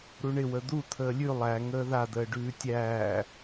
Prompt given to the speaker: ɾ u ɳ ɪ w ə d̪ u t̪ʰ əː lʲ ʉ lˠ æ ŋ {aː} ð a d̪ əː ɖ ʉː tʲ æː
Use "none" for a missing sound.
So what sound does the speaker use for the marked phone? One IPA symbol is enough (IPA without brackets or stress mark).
əː